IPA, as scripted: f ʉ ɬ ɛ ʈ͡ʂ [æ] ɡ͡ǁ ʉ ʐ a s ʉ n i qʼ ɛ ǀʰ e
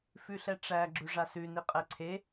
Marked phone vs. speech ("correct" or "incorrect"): correct